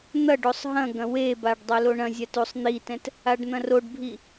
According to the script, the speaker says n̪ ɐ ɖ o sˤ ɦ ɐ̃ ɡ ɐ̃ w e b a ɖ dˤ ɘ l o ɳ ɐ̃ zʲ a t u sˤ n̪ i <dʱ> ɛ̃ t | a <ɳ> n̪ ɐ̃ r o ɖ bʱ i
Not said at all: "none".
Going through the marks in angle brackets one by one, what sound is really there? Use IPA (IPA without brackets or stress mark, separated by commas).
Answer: t, ɖ